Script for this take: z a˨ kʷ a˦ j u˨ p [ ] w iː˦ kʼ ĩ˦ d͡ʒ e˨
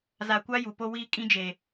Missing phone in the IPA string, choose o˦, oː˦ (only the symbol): o˦